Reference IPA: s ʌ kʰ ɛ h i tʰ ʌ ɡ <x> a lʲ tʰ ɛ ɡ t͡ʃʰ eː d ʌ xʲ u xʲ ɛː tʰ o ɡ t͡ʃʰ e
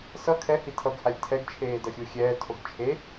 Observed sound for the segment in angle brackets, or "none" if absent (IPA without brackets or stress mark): h